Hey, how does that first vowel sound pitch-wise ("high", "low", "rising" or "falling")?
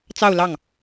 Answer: falling